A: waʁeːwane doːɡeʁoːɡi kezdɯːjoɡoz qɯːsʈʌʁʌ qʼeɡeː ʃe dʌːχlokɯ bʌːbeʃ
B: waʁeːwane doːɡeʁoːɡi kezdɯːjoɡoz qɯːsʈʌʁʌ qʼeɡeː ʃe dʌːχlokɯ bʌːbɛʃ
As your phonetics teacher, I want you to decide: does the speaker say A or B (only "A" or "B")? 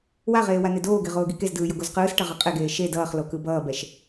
B